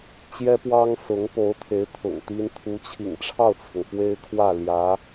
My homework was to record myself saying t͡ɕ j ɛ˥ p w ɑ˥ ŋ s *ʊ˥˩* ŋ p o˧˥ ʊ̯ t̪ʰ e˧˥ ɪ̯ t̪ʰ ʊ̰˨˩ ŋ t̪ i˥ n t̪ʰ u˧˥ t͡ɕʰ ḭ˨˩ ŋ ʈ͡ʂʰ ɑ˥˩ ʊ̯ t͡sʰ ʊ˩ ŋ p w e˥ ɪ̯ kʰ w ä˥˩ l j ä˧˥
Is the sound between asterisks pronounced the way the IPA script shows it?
no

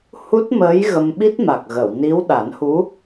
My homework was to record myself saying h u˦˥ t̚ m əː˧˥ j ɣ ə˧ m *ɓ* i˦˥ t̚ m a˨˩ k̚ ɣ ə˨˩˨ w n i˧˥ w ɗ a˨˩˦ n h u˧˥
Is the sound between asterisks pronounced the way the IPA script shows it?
yes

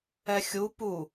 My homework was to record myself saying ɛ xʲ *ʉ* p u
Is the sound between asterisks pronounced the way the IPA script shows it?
no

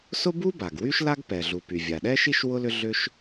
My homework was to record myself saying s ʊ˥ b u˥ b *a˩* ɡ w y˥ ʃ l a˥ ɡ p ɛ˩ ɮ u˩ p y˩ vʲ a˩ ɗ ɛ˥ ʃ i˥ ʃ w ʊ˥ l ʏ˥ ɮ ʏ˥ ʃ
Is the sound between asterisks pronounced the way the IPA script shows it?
yes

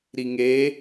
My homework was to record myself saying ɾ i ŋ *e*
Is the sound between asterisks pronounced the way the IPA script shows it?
yes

